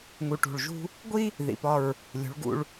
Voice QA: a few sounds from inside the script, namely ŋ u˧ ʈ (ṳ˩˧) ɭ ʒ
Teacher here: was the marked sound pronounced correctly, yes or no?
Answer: no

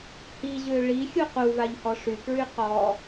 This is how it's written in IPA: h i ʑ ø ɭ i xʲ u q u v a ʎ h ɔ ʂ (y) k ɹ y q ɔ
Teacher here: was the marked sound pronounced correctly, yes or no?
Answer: yes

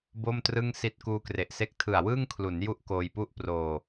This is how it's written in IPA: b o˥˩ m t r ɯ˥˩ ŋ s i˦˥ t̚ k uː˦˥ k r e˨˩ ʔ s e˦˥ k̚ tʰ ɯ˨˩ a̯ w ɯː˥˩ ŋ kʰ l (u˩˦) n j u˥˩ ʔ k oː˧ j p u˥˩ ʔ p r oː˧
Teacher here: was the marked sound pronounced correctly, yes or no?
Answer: yes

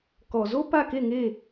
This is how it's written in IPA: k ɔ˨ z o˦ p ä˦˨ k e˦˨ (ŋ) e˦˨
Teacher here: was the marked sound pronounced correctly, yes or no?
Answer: yes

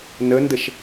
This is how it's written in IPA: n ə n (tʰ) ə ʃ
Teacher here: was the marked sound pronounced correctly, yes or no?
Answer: no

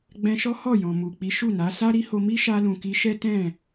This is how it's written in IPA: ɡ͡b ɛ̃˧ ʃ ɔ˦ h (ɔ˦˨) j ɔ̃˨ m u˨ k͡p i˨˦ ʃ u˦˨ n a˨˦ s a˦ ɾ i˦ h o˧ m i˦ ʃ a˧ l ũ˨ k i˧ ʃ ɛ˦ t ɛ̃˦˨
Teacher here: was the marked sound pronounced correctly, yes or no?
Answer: yes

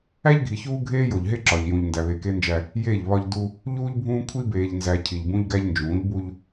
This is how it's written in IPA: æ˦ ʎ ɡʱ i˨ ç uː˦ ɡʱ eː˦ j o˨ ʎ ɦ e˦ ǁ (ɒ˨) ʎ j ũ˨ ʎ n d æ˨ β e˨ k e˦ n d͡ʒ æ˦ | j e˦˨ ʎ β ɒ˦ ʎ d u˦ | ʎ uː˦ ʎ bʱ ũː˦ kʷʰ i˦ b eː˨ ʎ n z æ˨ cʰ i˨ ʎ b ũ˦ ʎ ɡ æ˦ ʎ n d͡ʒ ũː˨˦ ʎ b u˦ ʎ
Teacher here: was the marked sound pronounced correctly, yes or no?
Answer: yes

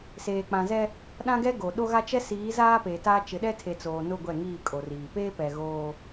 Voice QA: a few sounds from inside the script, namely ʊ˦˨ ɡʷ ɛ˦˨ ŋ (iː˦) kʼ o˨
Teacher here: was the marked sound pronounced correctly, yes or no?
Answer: no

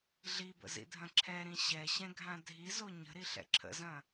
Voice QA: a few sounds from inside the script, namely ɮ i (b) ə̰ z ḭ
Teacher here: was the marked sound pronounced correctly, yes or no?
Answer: yes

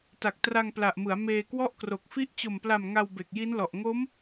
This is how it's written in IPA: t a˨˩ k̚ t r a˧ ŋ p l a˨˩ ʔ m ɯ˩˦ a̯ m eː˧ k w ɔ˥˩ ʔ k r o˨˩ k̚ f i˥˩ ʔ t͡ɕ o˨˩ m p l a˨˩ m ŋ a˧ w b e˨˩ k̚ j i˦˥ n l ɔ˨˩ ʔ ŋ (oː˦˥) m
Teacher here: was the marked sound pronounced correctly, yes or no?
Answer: no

